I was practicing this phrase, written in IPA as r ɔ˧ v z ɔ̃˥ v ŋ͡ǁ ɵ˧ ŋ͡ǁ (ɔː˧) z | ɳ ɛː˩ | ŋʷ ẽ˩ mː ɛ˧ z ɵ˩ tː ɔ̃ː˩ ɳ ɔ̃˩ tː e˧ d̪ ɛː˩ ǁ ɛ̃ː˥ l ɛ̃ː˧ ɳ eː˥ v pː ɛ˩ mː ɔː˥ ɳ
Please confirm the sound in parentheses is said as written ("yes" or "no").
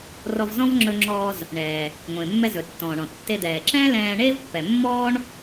yes